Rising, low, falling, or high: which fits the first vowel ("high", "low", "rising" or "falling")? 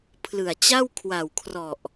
low